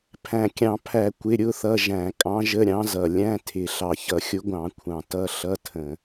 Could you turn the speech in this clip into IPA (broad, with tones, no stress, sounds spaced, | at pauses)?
pʰ æ̃˨˩ kʲ ɑ̃˧˩˧ pʰ æ˧˩˧ kʷ ɪ˧˥˧ ɾʲ ʊ˧˥˧ θ ʌ˧˥˧ ʒ æ̃˧˩˧ kʼ ɑ̃˧˥ ʒ ə˧˥˧ ɾʲ ɑ̃˧˥ z ʌ˨˩ lʲ æ̃˧˥˧ tʰ ɪ˨˩ ɬ ɑ˨˩ ç ʌ˧˩˧ xʲ ʊ˧˥ ɡʷ ɑ̃˧˩˧ kʷʰ ɑ̃˨˩ t ʌ˧˥˧ ɬ ʌ˧˥˧ tʰ ə̃˧˩˧